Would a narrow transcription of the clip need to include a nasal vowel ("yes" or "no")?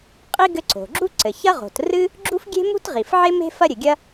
no